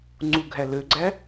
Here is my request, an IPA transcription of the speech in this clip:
ŋ͡ǀuɡʱæ løɡ͡ǀæ

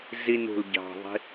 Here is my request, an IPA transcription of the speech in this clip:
zinṳl ɟɑ̤ðˤi̤

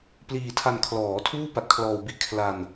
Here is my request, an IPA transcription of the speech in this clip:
pliː˧tʰa˧n kʰlɔː˩˦tʰuː˥˩pa˨˩t̚ kʰlɔː˧wbi˥˩ʔ kʰla˧n

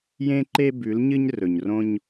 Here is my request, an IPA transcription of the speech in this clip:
jẽ˦ǃe˦ bʉ˨˦l ɲɨ˦ɲrɵ˨ɲrõ˦ɲ

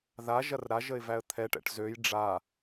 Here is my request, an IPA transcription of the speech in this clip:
ða ʒɐrɾaʒəɪ̯ væə̯t̪ʰɛʈɛ̰ʈ zøj ɖ͡ʐa

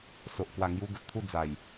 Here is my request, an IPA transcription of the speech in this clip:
so˨ʔkwa˨˩ŋju˧ ɡə˨t̚t̪ʰu˥˧d͡za˨˩j

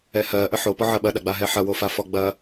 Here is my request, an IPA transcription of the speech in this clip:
ɛhɜ ʔəħo pɔʕɐɓɐ ɗaɡ͡baɦɛħɐ wofafɔɡ͡bɐ

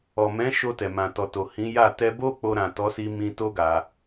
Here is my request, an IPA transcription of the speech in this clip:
ɔ˨mɛ̃˨˦ ʃo˧tɛ˨mã˨ tɔ˨to˨ hĩ˨˦ja˦˨ tɛ˧bo˦ k͡po˧ ɾã˨tɔ˨˦si˧ mĩ˧ to˦ɡa˧

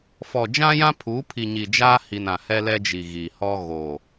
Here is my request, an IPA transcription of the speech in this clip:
fɔ˨d͡ʒã˦jã˦pʰuː˨˦ pʰi˨ɲi˨d͡ʒaː˦hi˨n ã˨hɛ˦lɛ˦d͡ʒi˨ ɣi˨hɔ˦ ɣo˨

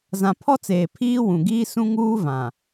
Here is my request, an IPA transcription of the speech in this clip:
zã˨pʰɔ˦t͡seː˨ pʰiː˦wũ˨ɡiː˦ sũ˦ŋuː˦vã˨

